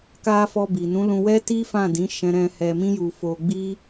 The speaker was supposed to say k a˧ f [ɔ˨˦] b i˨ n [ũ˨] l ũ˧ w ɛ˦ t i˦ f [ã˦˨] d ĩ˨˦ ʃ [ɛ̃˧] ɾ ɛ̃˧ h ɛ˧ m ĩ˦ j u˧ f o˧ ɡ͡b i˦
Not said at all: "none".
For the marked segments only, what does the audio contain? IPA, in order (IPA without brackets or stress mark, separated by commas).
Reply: ɔ˧, ũ˨˦, ã˦˨, ɛ̃˧